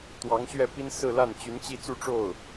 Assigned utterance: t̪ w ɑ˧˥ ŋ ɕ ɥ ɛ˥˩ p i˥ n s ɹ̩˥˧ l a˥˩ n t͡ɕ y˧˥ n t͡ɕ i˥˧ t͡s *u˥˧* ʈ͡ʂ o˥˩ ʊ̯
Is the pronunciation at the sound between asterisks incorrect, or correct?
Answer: correct